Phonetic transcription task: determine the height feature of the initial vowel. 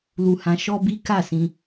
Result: high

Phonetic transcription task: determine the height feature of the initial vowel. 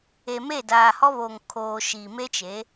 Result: mid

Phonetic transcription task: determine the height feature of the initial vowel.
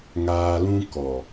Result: low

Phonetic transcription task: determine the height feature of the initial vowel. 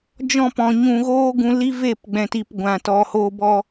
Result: mid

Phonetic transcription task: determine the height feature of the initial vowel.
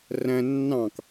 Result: low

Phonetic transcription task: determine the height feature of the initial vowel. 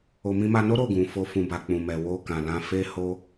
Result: mid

